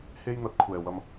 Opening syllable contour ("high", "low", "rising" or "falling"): high